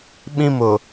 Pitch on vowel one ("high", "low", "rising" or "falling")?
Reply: high